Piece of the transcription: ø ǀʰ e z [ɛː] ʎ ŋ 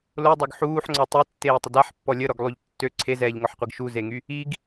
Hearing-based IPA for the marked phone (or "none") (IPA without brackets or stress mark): ɛː